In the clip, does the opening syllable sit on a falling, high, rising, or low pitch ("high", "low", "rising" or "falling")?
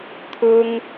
high